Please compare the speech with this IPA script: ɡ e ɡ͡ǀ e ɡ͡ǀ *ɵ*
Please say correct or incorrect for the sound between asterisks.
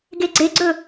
correct